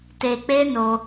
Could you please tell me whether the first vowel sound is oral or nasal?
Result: oral